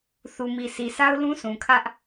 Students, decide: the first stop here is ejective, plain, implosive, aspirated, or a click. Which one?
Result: aspirated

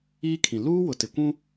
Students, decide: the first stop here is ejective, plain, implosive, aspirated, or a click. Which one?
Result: aspirated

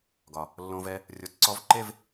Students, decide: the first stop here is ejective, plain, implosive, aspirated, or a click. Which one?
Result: plain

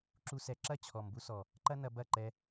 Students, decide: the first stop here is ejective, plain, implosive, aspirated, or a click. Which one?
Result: click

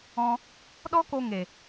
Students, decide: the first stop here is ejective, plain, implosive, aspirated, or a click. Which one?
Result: implosive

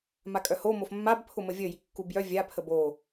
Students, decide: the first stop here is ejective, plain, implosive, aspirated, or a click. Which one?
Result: ejective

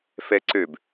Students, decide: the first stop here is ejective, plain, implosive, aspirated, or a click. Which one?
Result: click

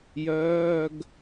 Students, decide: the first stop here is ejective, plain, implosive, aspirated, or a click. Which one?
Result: plain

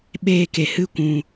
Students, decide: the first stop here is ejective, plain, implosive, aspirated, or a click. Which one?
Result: implosive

